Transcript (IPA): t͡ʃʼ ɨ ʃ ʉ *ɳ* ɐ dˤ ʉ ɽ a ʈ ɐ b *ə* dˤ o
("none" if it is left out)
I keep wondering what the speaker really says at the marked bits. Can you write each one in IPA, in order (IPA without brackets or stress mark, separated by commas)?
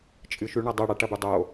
ɳ, ʉ